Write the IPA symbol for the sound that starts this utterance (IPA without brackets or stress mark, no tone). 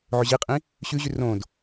ʕ